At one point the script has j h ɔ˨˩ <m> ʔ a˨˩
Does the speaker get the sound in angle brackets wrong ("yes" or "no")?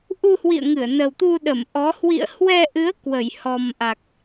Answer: no